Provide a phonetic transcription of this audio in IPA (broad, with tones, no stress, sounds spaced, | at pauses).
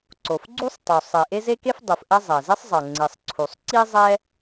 ǀ o˩ f ɡ͡ǀ u˥ sˤ tˤ u˩ sˤ e˩ ʔ e˥ z e˥ k e˥ f dˤ u˩ f ʔ ɛ˥ zˤ ɛ˩ z i˥ sˤ zˤ ɤ˩ ŋ͡ǀ i˩ sˤ ǀʰ u˩ sˤ ǀ i˥ zˤ ɛ˥